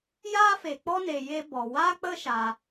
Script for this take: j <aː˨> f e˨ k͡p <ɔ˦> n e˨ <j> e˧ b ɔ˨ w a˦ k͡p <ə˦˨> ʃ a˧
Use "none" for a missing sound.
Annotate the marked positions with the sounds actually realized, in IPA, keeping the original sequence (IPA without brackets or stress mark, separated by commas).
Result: aː˦, ɔ˦, j, ə˦